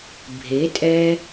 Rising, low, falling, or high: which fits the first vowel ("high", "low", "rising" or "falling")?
rising